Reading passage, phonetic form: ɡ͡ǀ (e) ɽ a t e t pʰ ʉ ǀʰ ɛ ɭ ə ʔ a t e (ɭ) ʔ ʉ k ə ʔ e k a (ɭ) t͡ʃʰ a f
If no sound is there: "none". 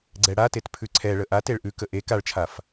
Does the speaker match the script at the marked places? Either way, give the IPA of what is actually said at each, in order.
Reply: ɛ, ɭ, ɭ

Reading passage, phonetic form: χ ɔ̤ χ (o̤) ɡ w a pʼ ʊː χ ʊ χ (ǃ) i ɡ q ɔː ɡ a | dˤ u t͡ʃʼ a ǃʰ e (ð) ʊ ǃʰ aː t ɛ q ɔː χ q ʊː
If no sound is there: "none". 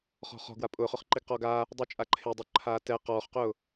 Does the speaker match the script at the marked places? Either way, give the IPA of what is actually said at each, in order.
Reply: ɔ̤, ǃ, dˤ

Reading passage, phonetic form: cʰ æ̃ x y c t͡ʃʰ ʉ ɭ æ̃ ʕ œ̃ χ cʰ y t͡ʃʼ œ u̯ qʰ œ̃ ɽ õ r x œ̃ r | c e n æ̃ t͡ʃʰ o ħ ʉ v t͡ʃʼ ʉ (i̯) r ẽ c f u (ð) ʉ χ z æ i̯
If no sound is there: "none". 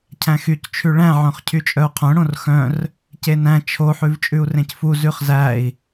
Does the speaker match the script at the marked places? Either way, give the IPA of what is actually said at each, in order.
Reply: u̯, z

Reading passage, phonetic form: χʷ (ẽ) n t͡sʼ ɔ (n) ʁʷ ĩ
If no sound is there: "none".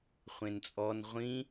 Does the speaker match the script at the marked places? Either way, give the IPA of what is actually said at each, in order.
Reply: ẽ, n

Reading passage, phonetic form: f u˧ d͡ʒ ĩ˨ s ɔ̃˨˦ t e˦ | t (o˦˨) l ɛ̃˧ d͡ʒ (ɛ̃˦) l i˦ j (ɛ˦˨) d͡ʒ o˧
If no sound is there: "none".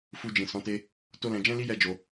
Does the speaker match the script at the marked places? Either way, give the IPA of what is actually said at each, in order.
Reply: o˦, ɛ̃˦, ɛ˦

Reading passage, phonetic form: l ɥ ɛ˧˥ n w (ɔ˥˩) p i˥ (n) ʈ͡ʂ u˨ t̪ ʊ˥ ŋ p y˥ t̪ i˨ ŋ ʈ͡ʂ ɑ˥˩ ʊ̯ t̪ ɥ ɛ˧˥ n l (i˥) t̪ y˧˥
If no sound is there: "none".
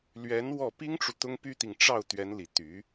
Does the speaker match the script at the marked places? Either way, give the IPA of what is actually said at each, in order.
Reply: ɔ˥˩, ŋ, i˨˩

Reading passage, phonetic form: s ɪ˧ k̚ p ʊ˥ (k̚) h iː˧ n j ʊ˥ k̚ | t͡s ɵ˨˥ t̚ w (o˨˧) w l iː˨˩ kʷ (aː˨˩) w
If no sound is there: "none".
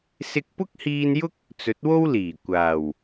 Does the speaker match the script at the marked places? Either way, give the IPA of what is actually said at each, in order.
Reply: k̚, o˥, aː˨˩

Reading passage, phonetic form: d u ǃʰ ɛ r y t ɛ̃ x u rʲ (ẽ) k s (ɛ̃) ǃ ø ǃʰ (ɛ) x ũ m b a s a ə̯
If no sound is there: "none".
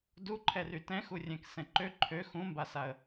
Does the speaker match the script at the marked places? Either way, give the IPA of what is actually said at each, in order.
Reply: ɛ̃, ɛ̃, ø

